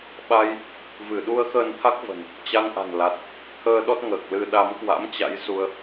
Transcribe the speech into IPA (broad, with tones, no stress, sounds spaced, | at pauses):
ɓ a˧ j | v ɨ˧˩ ɗ u˧ ə̯ x əː˧ n t̪ʰ a˦˥ k̚ v ə̤˨˩ n | t͡ɕ a˧ ŋ ʔ a̤˨˩ n l a˨˩ t̚ | t̪ʰ əː˧ ɗ ɔ˦˥ t̚ ŋ əː˨˩ k̚ l ɨ˧ ɗ a˨˦ m k w a̰˧˥ m t͡ɕ a̰˧˥ j s u˧ ə̯